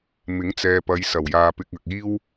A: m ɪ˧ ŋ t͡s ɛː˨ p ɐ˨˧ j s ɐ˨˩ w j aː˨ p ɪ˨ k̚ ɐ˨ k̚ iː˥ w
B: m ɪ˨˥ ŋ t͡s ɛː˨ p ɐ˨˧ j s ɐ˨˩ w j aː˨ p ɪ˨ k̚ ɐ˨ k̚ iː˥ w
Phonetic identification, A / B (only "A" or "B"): B